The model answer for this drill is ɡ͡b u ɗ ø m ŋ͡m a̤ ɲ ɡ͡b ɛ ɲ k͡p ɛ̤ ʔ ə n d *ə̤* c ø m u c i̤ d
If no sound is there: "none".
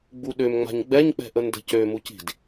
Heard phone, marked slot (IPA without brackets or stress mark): ə̤